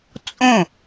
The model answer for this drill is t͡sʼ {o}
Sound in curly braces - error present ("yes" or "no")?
yes